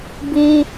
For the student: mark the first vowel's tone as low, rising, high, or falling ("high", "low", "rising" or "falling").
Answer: high